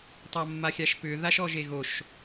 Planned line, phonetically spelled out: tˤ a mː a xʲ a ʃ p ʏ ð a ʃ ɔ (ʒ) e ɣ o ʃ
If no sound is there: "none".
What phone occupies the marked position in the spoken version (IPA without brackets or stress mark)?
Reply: ʒ